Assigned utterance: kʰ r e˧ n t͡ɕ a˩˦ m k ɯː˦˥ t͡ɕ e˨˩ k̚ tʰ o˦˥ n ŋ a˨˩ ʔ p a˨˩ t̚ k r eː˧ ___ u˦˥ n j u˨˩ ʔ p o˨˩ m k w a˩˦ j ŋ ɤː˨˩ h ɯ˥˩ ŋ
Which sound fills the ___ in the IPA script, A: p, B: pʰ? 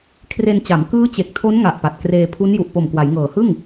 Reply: B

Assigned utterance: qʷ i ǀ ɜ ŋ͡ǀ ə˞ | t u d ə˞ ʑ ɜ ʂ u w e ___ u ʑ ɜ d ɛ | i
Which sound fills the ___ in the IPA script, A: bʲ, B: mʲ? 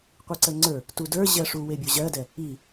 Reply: A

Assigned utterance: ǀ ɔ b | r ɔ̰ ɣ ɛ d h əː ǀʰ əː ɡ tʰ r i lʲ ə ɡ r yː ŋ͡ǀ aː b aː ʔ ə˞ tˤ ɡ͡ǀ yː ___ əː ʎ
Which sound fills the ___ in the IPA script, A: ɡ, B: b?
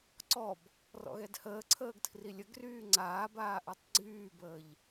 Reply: B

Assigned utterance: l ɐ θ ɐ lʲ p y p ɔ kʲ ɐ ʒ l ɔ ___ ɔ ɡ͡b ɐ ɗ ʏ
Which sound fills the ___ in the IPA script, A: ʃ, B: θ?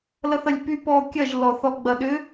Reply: B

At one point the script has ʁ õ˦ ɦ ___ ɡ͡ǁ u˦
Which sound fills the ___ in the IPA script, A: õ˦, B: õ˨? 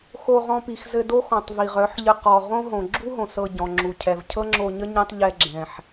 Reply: B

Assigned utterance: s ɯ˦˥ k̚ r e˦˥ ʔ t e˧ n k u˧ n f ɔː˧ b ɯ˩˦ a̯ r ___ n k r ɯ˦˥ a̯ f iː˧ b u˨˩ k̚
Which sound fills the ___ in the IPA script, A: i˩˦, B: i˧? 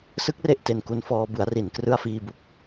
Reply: A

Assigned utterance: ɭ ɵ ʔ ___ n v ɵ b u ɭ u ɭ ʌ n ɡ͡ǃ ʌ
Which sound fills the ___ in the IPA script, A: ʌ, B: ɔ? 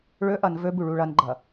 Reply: A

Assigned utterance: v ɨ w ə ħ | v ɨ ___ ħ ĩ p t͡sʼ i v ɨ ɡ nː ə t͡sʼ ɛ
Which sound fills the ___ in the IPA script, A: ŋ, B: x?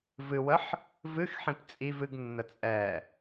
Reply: B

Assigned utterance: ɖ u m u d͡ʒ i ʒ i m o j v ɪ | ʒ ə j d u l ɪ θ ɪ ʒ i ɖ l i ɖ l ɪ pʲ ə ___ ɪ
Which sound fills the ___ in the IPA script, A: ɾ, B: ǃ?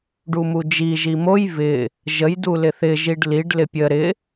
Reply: A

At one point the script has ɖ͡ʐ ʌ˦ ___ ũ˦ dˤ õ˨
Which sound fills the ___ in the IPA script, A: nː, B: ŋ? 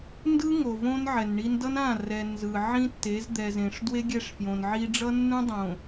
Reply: A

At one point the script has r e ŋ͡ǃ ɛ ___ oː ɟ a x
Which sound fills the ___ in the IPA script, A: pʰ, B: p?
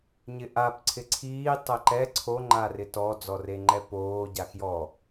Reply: B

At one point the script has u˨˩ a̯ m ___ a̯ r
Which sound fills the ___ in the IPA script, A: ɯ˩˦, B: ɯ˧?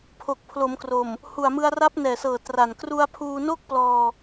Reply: B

